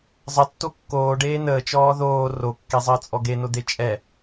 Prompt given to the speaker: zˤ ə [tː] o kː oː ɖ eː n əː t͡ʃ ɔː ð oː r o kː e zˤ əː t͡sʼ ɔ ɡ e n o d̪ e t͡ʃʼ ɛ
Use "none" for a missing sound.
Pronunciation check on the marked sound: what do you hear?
tː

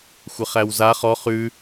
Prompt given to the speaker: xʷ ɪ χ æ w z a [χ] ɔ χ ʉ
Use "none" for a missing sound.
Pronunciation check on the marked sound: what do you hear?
χ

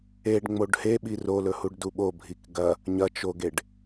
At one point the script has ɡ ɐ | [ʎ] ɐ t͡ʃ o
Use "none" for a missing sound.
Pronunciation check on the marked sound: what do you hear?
ɲ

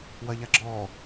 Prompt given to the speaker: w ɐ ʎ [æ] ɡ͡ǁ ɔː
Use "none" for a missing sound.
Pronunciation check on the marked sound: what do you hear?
a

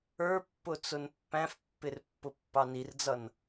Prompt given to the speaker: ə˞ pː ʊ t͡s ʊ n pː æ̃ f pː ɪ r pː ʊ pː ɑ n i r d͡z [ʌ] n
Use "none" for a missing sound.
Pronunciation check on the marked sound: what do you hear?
ʌ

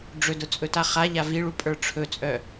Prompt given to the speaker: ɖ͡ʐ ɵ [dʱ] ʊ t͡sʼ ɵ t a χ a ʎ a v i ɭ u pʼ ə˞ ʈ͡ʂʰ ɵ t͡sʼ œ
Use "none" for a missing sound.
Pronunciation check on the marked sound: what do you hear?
d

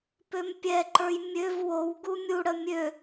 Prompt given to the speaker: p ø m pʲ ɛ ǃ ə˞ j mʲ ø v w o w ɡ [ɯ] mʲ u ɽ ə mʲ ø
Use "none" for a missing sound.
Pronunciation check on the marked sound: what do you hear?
u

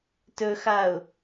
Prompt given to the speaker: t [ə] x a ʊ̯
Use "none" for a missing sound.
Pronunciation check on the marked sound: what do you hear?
ɵ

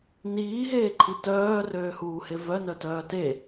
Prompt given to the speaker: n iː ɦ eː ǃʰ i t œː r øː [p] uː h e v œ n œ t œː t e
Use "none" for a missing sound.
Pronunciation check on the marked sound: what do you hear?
h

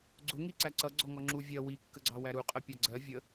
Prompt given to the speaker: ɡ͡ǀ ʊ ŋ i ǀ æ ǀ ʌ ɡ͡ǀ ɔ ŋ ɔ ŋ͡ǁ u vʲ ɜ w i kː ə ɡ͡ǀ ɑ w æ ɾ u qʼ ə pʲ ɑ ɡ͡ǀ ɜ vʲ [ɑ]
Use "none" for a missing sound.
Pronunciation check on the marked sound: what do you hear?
ə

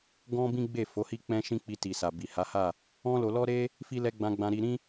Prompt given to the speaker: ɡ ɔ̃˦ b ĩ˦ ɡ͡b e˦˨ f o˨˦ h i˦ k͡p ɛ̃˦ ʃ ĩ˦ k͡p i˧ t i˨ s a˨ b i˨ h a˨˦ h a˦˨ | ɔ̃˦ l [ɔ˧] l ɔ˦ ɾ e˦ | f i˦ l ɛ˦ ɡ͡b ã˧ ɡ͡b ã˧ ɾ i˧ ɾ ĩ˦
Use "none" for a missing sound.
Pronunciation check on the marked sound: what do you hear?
o˧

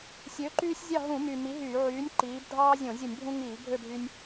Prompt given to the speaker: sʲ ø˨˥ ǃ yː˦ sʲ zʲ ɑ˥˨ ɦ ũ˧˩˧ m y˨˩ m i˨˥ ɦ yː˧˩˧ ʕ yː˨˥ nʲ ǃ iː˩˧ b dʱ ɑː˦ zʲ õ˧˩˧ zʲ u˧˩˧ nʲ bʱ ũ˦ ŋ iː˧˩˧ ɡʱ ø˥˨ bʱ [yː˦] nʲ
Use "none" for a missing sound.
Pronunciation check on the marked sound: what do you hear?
y˦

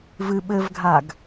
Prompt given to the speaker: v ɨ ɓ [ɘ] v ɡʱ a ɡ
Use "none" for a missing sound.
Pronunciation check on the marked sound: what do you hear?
ɘ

